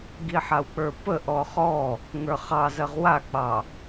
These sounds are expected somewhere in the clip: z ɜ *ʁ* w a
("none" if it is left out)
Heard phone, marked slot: ʁ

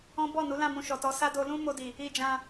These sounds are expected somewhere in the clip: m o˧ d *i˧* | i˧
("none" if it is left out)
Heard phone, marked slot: i˨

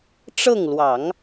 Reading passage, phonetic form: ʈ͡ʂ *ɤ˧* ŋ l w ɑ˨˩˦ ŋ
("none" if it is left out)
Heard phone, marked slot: ɤ˥˩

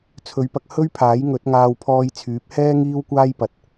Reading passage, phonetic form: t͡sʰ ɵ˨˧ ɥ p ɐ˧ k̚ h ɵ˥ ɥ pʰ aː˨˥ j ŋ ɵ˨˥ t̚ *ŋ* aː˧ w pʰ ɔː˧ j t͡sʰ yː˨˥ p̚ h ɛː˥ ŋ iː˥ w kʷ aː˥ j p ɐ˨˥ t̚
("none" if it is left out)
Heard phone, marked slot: ŋ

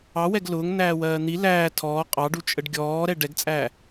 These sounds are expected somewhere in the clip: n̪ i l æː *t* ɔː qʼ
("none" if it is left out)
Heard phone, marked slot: tʰ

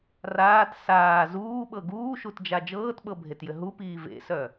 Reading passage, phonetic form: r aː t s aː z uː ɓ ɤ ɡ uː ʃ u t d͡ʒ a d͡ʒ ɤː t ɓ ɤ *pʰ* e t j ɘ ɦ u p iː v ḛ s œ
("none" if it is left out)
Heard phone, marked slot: bʱ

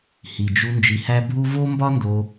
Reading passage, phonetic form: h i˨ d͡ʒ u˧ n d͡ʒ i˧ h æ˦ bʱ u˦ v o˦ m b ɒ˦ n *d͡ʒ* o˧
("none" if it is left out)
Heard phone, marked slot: d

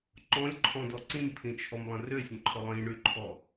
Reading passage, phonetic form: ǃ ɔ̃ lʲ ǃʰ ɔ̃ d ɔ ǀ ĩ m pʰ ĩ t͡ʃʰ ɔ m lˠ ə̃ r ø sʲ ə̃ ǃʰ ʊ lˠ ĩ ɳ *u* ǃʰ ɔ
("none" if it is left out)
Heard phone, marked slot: y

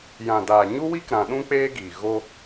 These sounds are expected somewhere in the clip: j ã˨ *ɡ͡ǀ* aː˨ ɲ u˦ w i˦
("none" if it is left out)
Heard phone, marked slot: d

